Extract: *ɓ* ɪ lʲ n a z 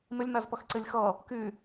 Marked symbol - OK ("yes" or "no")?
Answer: no